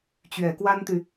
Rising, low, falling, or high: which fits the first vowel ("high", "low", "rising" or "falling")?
low